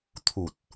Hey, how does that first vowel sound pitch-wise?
low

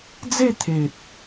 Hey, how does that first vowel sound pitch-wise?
falling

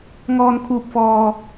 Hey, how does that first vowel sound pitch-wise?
high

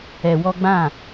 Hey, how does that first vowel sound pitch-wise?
low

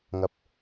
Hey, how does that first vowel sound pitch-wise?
low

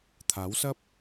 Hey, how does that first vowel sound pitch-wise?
rising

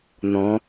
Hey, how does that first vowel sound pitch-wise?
rising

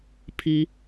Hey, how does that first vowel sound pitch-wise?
rising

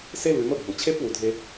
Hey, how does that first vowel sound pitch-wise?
high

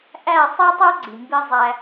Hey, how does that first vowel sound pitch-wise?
falling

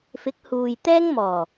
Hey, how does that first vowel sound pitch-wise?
rising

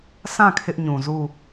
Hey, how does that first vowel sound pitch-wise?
falling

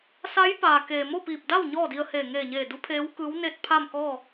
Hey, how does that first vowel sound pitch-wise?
rising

